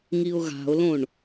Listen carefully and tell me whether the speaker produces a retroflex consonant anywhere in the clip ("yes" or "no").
yes